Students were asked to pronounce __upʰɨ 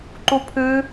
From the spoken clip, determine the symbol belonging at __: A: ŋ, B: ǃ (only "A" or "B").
B